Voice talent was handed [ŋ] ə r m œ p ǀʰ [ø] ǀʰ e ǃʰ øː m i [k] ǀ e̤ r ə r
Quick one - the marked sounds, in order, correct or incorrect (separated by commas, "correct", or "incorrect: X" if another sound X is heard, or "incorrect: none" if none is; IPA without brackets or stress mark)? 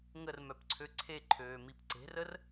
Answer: correct, correct, incorrect: p